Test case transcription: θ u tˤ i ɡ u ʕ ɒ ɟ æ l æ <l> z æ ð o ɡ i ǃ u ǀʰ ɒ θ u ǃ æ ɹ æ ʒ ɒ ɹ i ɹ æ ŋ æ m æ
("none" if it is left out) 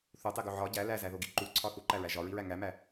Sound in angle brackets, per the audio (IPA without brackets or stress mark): none